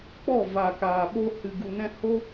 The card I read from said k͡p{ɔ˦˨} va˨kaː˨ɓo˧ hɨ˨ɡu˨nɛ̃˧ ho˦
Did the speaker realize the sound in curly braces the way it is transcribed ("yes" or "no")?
yes